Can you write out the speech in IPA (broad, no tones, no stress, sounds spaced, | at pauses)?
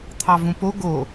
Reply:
t̪ʰ ɑ v ũ p o ɡ o